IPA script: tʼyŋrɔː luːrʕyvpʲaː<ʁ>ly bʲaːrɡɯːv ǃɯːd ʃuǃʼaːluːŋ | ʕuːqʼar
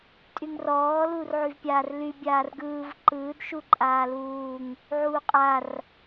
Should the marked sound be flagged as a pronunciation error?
yes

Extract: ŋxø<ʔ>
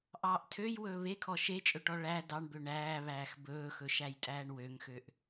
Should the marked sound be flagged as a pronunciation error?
no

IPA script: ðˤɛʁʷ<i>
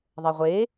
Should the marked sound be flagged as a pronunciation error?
yes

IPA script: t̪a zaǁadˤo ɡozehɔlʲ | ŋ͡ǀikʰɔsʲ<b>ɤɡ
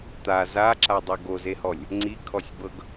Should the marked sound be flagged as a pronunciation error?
no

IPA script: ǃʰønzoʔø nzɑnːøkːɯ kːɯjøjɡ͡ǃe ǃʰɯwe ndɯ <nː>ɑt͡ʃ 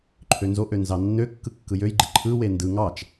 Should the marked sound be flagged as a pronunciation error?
yes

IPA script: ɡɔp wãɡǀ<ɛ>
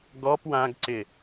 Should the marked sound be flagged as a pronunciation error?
yes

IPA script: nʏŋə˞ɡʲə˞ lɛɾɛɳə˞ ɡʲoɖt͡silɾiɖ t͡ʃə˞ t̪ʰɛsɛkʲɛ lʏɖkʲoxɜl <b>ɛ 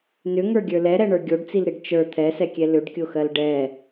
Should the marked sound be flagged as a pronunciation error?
yes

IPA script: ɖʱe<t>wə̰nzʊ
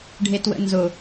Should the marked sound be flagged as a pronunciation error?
no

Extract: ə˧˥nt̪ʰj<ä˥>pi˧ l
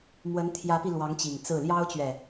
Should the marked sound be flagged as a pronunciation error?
yes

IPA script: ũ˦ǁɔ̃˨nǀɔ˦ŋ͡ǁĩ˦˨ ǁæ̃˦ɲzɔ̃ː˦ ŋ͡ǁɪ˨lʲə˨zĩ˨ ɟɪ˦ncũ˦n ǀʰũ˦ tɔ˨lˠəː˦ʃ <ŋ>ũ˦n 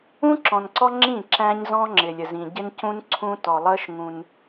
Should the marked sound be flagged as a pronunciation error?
no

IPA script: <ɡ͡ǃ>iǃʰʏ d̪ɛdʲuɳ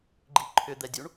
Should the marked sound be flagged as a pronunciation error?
no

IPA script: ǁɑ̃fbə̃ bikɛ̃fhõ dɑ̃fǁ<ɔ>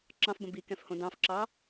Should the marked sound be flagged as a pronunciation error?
yes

